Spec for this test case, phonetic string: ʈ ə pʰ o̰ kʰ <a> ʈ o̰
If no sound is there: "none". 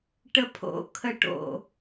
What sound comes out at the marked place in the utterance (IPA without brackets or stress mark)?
ə